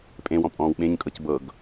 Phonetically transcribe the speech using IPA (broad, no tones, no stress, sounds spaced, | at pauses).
pʼ ẽ w ɔ̃ pʼ ɔ̃ː w ɓ ẽ ɲ kʼ ɤ c b ɤ ɡ